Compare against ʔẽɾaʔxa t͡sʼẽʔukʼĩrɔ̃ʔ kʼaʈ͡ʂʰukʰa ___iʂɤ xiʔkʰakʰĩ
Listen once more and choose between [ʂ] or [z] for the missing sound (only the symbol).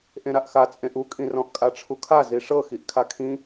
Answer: z